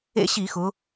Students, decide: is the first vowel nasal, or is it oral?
oral